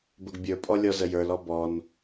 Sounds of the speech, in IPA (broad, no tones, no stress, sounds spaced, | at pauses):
b ə ɡ bʲ ə˞ pʼ ɔ lʲ ɔ z ə j ə˞ l ɔ b ɔ n